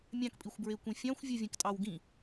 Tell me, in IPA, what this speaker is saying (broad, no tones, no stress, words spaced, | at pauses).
mʲɑ̃kpʼixʷbɹekʷĩ fʲɑ̃xʷvʲɯvʲẽktʼɑw ɡĩ